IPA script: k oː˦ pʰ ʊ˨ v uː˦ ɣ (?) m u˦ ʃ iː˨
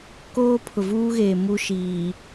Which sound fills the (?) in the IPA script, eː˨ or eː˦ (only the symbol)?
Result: eː˨